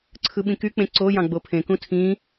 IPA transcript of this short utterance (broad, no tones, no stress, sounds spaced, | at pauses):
ǀʰ ɯ ɓ ĩ k y k͡p ẽ ǀ o j ɑ̃ ɡ͡b o pʰ ẽ k ũ tʰ ĩ